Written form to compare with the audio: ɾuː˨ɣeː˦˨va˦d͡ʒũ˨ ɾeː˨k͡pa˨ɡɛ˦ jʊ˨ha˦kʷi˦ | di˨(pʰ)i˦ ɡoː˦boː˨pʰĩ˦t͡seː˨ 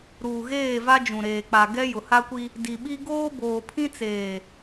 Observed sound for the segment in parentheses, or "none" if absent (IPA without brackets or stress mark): ɓ